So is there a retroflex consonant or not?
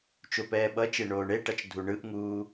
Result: yes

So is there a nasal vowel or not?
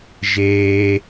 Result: no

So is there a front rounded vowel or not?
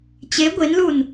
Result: no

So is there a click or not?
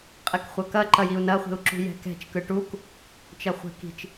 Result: yes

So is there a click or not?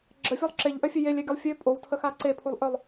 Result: yes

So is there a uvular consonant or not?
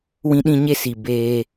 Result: no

